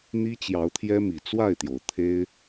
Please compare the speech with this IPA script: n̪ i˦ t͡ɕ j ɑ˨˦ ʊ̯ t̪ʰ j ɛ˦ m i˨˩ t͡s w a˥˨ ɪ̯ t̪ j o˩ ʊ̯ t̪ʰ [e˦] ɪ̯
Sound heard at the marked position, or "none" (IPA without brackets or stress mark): e˦